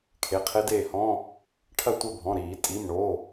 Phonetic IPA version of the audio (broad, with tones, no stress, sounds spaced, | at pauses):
kʰ e˩˧˩ qʰ e˦˥ d eː˦˨ h ɔ̃˧˥˧ | ʈʰ ɐ˦˨ tʷ ɘ˦˨ bʱ ɔ̃˩˧˩ ɾ iː˧˩˧ tʼ i˩˧˩ m ɳ o˩˧˩